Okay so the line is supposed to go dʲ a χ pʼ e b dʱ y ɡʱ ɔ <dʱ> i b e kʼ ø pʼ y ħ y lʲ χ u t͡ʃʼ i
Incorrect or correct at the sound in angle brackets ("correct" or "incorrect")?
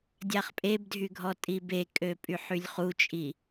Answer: incorrect